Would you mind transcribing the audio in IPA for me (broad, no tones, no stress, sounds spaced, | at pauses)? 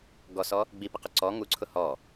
ɡ ɔ s ɔ | ɡ͡b i p ɪ q ʊ ǀ ɔ ŋ u ǀʰ ʊ h ɔ